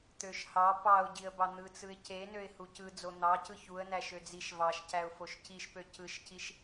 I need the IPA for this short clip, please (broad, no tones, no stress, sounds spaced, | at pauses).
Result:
t̪ ø ʃ h ɑ p ɑ ʊ̯ ɟ i ə̯ b ɑ n̪ ɯ t͡s ɯ ɪ̯ c e n ø ɪ̯ h u c ɯ d͡z o n̪ ɑ c ɯ ç u ə̯ n æ ʃ ø d͡z i ʃ v ɑ ʃ c æ ʊ̯ f o ʃ c i ʃ p ø c ɯ ʃ c i ʃ